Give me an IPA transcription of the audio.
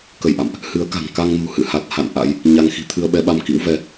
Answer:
kə˧˩jʔa̰˧˨mʔ | hɨ˨˦ə̯ka̤˨˩ŋ ka˧ŋnṳ˨˩hɨ̰˧˨ha˨˩t̚ ha̰˧˨n ʔa̰˧˥j | ɲa˧ŋxi̤˨˩ t̪ʰɨ˧ə̯ɓɛ˨˦ɓa˧m kḭ˧˥wvɛ˨˦

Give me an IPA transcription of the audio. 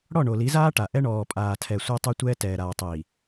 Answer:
ɽɔ˦˨ɳo˨li˨˦zaː˦ ʈa˨ ʔɛ˦ ɳɔː˨pʼaː˨tʰɛ˨ sʷɤ˦tˤu˦tʷɛː˦ tɛː˨ɾaː˨tˤi˨

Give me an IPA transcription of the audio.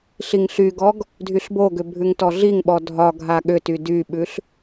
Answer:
ɬiŋɬyɡɔɡ | dʱyɬboɡʏ bʱʉŋtɔɮiŋɓɔ dʱɒɡʱa ɠʏty dyɓʉɬ

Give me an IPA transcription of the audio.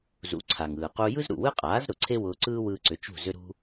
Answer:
zṵ˩˥ ǀʰa˩ŋɯː˩ qu˧ jɯ˥zɾṵ˩wɯ˥qʼaː˩˥z ɾʊ˩ǀʰe˥wʊː˧ ǀɯː˥wɯː˧ǀʏ˩˥ t͡ʃṳ˥˩zʏ˥ɾṳ˥

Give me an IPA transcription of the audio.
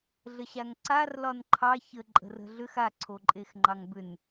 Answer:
ɮəɕaŋǀar lɒnǃʰɑ çə ǃʼə̤rə̤ɮʏx a ǀʰoǃʼexŋ͡ǃɑŋbʏn

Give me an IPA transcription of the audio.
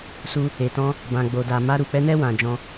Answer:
su˧ | e˨tɔ̃˧ | bã˨ɡ͡bo˨da˨ma˧ ɾu˨k͡pɛ˧nɛ˧ wã˨d͡ʒɔ̃˧

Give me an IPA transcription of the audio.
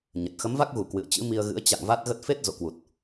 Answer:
ɲə˨˩t̚ xə˨˦mva˦˥k̚ɣu˧˩ kwɨ̰˧˨ə̯t͡ɕɨ̰˧˥mi˧ə̯ɣɨ̰˧˥ə̯ t͡ɕa̰˧˨ŋ va˦˥t̚ɣə˦˥t̚ fe˦˥t̚ zo̰˧˨kwu˨˩t̚

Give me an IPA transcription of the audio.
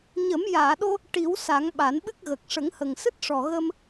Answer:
ɲə˨˩˦mjaː˨˩˨ɗo˧ | ʈi˨˩˦wsa˨˩˦ŋ ɓa˨˩˦nɓɨ˦˥k̚ɣə˨˩k̚ ʂə˨˩˦ŋhə˨˩ŋsɨ˦˥t̚ʂɔ˨˩ ɣə˧m

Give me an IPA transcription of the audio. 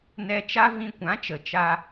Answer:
nɛ˧t͡ʃa˦vĩ˧ kʷã˨˦t͡ʃə˨ t͡ʃa˦

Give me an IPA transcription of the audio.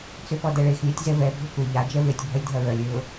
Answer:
t͡sʏpɔdɛɭex lʲɛtʲzɛvɛ bʱʊkʷɐ ʎa d͡ʒɛvetʲ bʱɐlʲdʱɐɹœlʲ ɹʊ

